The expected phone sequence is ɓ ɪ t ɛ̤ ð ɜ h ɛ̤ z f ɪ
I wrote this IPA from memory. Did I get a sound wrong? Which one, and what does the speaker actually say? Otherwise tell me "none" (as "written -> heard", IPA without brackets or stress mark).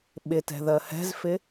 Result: none